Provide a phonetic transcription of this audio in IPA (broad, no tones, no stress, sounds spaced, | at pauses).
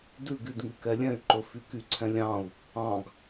d ʉ ɡ y d ŋ y k ɛ lʲ ɛ̃ y̯ ǃ ɵ f y k y ǀʰ ɛ̃ lʲ ɑ̃ u̯ | ɑ̃ ɡ